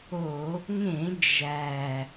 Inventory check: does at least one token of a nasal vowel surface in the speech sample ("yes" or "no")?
yes